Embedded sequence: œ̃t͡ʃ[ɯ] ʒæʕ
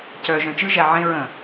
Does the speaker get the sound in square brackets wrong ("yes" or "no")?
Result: no